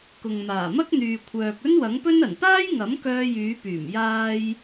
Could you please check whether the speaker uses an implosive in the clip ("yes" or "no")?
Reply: no